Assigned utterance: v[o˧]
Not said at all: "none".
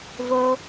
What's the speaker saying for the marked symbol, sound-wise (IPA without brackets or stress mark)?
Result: o˧